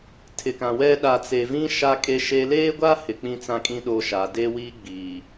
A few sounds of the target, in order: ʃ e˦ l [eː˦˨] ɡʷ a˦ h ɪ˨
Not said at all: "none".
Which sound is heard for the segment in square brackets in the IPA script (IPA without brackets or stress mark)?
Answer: eː˦